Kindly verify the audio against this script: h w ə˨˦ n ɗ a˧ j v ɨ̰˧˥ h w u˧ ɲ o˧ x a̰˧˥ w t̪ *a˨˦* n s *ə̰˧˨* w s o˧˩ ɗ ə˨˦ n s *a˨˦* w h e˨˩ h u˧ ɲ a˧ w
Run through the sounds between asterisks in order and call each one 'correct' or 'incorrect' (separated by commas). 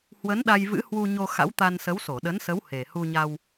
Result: incorrect, incorrect, incorrect